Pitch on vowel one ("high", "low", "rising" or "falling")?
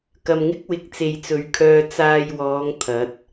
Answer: low